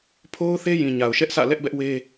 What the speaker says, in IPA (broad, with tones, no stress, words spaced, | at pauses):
pʰo˦ʊ̯ θe˦jĩ˨ ɲa˨ʊ̯ʃɛ˦ʔsʰä̰˦˨ lɛ˦ʔbɛ˦ʔwe˦